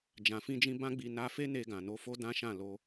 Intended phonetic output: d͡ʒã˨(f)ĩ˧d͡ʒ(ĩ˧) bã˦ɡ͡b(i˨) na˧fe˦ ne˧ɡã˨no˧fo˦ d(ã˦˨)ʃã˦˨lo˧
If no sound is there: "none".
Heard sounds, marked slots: f, ĩ˧, i˧, ã˦

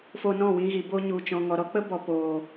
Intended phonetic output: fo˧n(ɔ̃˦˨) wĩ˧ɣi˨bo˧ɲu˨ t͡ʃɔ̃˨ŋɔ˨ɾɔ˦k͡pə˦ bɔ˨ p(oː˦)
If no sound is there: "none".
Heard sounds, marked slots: ɔ̃˦˨, oː˨

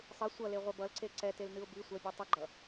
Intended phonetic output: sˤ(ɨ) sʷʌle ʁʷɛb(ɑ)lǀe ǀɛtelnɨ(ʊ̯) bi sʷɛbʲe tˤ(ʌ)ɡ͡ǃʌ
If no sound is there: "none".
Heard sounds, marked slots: ɨ, ʌ, ʊ̯, ʌ

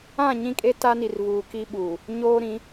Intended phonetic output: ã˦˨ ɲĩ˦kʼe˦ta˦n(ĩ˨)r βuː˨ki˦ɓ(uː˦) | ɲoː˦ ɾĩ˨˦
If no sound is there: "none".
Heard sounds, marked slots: i˨, uː˨

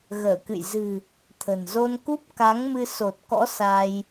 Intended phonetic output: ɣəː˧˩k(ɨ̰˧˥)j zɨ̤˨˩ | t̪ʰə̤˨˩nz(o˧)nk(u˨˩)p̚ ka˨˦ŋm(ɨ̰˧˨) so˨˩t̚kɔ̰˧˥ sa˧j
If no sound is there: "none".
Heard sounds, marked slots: ɨ̰˧˨, o˧, u˦˥, ɨ˧

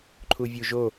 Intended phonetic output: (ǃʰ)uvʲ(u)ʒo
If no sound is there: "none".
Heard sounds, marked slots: ǃʰ, u

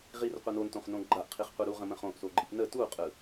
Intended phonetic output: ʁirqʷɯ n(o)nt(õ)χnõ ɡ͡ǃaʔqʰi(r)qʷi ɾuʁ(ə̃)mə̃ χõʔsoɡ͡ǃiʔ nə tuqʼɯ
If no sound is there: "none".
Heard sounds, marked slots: o, õ, χ, ə̃

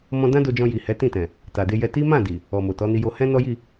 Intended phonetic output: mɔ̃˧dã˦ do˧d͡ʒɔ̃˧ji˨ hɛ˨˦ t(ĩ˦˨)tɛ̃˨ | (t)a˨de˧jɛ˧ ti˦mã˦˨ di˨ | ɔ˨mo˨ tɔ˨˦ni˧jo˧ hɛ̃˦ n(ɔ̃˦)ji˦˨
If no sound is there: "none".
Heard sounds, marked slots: ĩ˦˨, t, ɔ˦

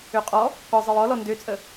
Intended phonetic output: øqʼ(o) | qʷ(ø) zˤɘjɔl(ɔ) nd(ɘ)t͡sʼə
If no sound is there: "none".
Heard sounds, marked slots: ɔ, ɘ, ɔ, ø

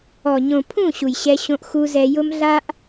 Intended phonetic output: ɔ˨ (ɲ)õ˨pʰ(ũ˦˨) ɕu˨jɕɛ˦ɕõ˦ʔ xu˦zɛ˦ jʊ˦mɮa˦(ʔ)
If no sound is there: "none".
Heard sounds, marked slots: ɲ, ũ˦˨, ʔ

